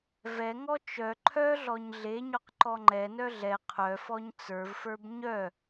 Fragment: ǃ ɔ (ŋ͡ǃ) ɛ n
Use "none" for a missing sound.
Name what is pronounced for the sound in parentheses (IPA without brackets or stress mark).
ŋ͡ǃ